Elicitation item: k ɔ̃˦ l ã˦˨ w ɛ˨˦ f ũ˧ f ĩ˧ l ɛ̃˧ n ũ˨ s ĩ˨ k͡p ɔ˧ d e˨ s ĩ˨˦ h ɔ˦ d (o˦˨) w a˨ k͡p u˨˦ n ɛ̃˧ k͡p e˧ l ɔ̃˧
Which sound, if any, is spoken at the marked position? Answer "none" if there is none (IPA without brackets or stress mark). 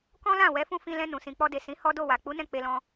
o˦˨